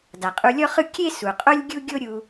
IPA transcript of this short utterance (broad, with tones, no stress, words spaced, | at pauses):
da˩qʼu˧lʲɔ˥χɯ˥ kʲe˥ su˩qʼo˥lʲɡʲu˥ɡʲo˥ ɾʲu˧